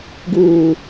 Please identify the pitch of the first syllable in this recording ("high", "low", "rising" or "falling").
low